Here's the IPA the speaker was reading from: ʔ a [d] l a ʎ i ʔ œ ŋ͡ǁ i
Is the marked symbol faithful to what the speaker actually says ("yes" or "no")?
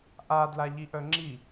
yes